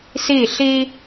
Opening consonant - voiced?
no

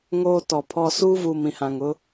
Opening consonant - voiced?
yes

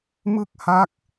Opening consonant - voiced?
yes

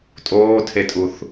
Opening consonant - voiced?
no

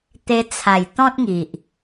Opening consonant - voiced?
no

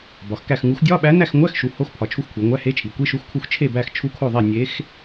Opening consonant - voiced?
yes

